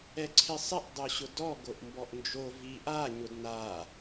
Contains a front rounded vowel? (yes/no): no